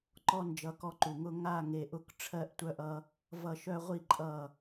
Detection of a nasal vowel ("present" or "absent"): absent